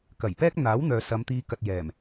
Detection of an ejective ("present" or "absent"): absent